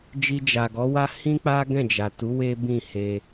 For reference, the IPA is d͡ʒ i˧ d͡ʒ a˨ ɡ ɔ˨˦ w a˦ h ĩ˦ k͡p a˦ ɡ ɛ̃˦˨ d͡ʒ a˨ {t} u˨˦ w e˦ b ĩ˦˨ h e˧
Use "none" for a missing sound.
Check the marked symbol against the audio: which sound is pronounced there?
t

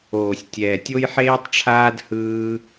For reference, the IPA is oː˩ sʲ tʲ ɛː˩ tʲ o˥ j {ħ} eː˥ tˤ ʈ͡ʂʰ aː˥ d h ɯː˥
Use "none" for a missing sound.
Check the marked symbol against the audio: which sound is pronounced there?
ħ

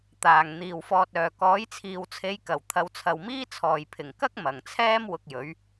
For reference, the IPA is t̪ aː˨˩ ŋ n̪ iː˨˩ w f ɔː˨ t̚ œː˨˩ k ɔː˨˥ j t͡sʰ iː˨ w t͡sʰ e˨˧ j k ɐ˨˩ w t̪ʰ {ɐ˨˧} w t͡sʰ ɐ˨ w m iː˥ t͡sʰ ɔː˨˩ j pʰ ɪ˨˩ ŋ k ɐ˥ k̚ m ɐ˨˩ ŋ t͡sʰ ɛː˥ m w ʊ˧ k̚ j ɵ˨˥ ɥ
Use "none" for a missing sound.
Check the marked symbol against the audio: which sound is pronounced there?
ɐ˨˧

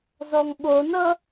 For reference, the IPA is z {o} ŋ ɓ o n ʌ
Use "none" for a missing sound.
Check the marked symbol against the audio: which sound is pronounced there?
ɔ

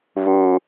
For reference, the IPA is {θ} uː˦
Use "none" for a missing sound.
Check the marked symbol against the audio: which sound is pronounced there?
β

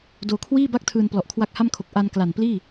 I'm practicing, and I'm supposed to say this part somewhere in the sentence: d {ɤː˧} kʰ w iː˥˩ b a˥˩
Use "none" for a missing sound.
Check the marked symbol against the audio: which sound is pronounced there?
oː˧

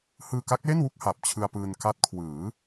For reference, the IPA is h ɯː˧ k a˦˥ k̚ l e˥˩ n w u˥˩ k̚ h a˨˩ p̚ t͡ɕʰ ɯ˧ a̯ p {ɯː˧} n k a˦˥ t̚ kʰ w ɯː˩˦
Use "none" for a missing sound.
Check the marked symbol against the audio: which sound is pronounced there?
ɯː˧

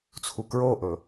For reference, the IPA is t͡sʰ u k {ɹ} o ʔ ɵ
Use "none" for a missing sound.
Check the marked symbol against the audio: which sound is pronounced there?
ɹ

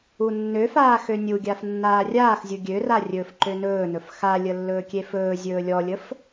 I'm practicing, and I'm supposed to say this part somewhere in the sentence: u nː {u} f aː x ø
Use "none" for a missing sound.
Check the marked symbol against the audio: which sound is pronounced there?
ø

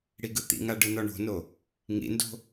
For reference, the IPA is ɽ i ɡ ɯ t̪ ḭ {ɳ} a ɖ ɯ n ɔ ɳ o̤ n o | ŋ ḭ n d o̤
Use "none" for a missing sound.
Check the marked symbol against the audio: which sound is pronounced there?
ŋ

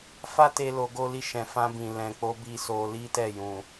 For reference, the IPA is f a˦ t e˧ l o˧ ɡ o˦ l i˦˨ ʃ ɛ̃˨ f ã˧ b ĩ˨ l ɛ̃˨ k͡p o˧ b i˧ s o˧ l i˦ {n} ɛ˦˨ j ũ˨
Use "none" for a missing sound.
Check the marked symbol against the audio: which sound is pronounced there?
t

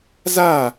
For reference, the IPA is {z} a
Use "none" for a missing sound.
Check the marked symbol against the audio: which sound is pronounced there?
z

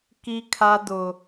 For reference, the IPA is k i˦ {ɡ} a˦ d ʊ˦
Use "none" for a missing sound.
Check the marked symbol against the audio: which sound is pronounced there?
kʰ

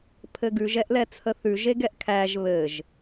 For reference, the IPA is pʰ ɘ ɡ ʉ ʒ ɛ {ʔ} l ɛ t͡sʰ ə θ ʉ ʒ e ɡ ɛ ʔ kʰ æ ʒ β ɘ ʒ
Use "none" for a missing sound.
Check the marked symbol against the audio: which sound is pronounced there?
ʔ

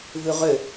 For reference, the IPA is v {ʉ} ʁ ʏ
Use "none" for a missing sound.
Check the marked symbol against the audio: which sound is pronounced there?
ʉ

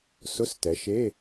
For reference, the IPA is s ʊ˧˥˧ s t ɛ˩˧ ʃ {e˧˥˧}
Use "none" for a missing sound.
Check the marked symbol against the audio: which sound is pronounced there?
e˧˥˧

